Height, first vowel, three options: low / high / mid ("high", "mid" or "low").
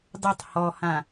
high